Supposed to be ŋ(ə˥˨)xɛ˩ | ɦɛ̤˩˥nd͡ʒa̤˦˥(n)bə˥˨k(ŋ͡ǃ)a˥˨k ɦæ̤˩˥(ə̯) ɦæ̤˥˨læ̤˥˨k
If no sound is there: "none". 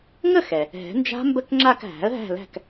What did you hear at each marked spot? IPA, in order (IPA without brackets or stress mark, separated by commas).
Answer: ə˥˨, m, ŋ͡ǁ, ə̯